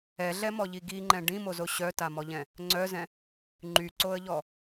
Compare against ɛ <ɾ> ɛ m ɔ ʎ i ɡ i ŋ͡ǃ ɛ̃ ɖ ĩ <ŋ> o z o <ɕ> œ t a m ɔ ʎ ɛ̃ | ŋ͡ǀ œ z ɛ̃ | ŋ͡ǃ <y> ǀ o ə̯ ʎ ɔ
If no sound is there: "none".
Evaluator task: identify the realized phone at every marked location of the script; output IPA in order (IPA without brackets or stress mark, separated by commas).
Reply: ɮ, m, ɕ, y